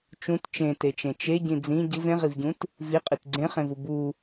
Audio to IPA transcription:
t͡ʃ ũ t t͡ʃ ẽ t e t͡ʃ ẽ t͡ʃ e ɟ ĩ d͡z ĩ ɟ ɯ v ẽ ʁ i v ɟ ũ t | v i qʼ i t ɡ͡ǀ ẽ χ ẽ v u b u

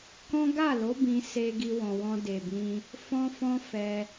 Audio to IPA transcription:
k ɔ̃˦ ɡ a˦˨ l o˨˦ b ĩ˧ s e˧ ɡ i˧ w ɔ̃˨ w ɔ̃˧ d e˨ b ĩ˧ | f ɔ̃˦ f ɔ̃˦ f ɛ˧

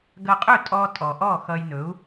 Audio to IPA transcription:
ɡ ɐ˧ qʼ ɵ˥˩ tʼ ɔ˧ tʼ ɔ˩ ʔ ɔ˥˩ x ʌ˧ j n ɵ˩˥ u̯

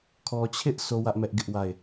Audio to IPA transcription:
kʰ ɔ˨ t͡ɕʰ ɪ˦ ʔ s o˦ w ä˦ ʔ m ɛ˦ ʔ ɡ ɪ˦ ʔ w a˦˨ ɪ̯

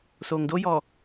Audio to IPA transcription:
s oː˨ ŋ d o˦ j ɔ˨

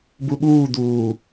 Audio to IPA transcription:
b u ɓ uː d̪ uː

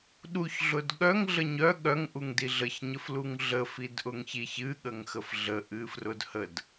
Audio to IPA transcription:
ɗ u ç ɮ ʊ d ɠ œ ŋ ɮ ə ɲ œ ɠ œ ŋ ʔ u ŋ d i ɮ ə ç ɲ ə f l u ŋ ɮ ə f i d ʔ ʊ ŋ ç i ç ɨ ɠ ə ŋ x ə f ɮ ə ʔ ɨ f r ʊ d h ə d

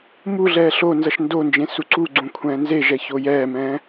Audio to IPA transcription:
m u ɮ ɛː ɬ o n z ʌ ʃ n d o n d͡ʒ ẽ s u ǀ u ɡ͡ǀ ũ kʷʰ ɛ̃ː n z e ʒ ɛ ç o j ɛː m ɛ̃ː

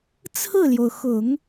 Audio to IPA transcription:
t͡sʰ ɹ̩˥˩ l j o˩ ʊ̯ x ʊ˨˩˦ ŋ

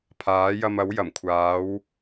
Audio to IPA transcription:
pʰ aː˨˥ j ɐ˧ m ɐ˨˥ w j ɐ˨˩ m kʷʰ aː˨˥ w

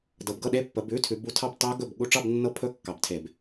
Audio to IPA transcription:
d ɤ˨˦ b ɡ ɤ˥˨ ɗ e˦˥ pː ə˨˦ b ʉ˧˥˧ tʰ ʉ˨˦ b u˧˥˧ tʰ ɑ˥˨ b t ɑ˦˥ ɡ ɵ˥˨ b ɠ u˥˨ ʈ͡ʂ ɑ˥˨ b nː ɤ˧˥˧ pʰ ɵ˧˥˧ kː ɑ˧˩˧ b tʰ e˧˩˧ b

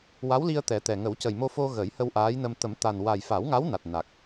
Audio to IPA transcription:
w a˧˥ w l i˧ ə̯ t̪ ɛ˨˩˦ t̪ ɛ˨˩ ŋ ə˨˩˦ w c ə˨˩ j m o˧ f o˧ ɣ ə˨˩˦ j h ə˧ w ʔ aː˧˥ j n ə˧ m t̪ ə˨˩˦ m t̪ a˨˩ n w a˨˩ j f a˨˩˦ w ŋ a˧˥ w n a˨˩ t̚ n a˨˩ k̚

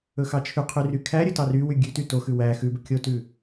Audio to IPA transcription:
ɵ x ɑ t͡ʃʰ ʉ qʰ y r y kʰ æ ɾʲ ɵ t ɑ r y w y ɡʲ ʉ t y t o x ʉ w æ x ʉ b ɵ kʲ o t ʉ

